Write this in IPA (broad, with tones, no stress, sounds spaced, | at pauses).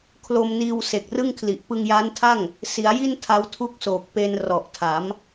kʰ l o˧ m n iː˧ w s e˨˩ k̚ r ɯ˥˩ ŋ kʰ l i˨˩ ʔ p ɯ˧ ŋ j aː˦˥ n tʰ a˥˩ ŋ | s i˩˦ a̯ j i˥˩ n tʰ a˦˥ w tʰ u˥˩ k̚ s oː˨˩ k̚ p e˧ n r ɔ˨˩ ʔ tʰ a˩˦ m